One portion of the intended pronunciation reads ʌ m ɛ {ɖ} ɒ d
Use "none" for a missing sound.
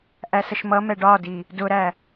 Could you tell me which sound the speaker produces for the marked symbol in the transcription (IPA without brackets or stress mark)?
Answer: ɖ